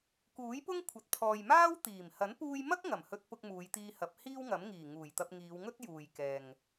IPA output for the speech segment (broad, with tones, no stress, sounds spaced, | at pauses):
k uː˨˥ j p ʊ˥ ŋ kʷʰ ɐ˨ t̚ pʰ ɔː˨ j m aː˥ w t̪ iː˨˩ m h ɐ˨˥ n p uː˧ j m ɐ˥ k̚ ŋ ɐ˨˩ m h ɵ˧ t̚ p ʊ˧ k̚ m uː˨˧ j t̪ iː˧ h ɐ˨˥ p̚ h iː˥ w ŋ ɐ˨˥ m ŋ iː˨˩ ŋ uː˨˩ j t̪ ɐ˧ p̚ ŋ iː˨˧ w ŋ ɵ˥ t̚ j uː˨ j k ɛː˨ ŋ